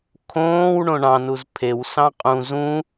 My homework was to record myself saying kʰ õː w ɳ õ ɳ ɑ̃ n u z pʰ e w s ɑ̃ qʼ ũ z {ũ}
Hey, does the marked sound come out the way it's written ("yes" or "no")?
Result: yes